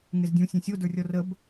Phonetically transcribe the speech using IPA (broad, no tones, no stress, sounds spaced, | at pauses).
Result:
ŋ e z dʲ ũ sʲ ẽ sʲ o d ə˞ rʲ ɔ r ə b